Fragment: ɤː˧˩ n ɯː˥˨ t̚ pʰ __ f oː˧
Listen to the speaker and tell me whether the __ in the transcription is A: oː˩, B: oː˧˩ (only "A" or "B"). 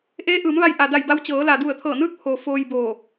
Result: A